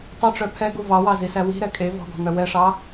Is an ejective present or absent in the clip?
present